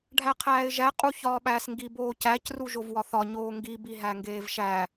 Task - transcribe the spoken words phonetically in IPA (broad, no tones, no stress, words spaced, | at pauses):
ɖʱæqʰæːɪ̯ʒæ qʼuçɒːɓæːsŋɡi boːcæc ruʒovwɒθɒ ɲoːŋɡi biɦæŋɡeːvʃæ